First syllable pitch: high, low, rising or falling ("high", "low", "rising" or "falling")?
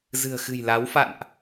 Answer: low